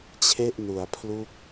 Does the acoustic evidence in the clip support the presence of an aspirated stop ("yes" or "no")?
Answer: yes